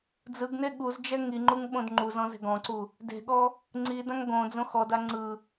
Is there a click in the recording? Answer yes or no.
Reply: yes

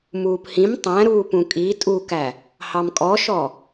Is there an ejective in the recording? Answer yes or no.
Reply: yes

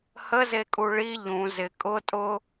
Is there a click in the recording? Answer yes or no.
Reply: no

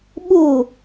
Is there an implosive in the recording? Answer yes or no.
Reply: yes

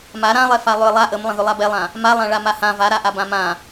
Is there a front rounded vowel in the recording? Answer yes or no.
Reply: yes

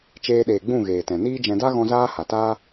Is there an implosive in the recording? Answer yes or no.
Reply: yes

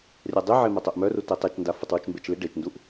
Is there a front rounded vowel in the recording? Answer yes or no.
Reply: yes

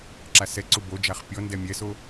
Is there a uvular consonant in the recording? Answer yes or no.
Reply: yes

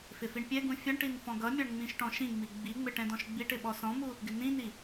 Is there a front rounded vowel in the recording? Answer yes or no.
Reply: no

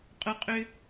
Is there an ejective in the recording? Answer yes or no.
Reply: yes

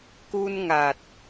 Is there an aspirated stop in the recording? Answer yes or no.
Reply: no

